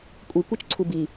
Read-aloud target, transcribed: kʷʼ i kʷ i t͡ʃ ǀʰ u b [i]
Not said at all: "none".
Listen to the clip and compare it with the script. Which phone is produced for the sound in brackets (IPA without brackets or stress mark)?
i